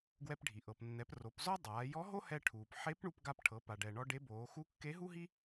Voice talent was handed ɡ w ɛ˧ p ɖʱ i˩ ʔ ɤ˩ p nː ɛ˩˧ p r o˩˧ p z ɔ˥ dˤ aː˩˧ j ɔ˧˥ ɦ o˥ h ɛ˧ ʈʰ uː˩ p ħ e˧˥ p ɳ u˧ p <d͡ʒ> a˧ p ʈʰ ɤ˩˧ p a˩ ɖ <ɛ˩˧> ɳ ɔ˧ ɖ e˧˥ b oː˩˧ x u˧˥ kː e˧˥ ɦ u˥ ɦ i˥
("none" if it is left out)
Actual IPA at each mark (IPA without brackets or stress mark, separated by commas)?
ɡ, ɛ˩